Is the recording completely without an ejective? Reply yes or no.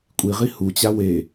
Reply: no